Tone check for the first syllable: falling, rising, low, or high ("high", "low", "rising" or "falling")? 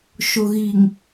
low